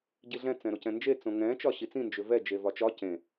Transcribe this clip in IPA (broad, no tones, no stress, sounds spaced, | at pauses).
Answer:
ɟ i ɮ ɛ̃ t͡s ɛ̃ ɾ o c ɛ̃ n d͡ʒ e t͡s õ ŋ ɛ̃ t͡ʃ ɒ ɕ i t͡s ĩ n d͡ʒ ʏ v ɛ d͡ʒ e v ɒ t͡ʃ ɒ c ẽ